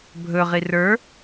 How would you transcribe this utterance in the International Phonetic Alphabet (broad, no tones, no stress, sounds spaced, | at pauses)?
bʱ ɵ ʁ i r ə˞